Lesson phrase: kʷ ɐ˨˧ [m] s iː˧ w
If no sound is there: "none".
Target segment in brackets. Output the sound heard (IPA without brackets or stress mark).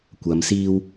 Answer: m